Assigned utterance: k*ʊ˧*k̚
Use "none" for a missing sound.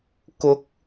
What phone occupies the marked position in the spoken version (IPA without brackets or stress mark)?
ʊ˥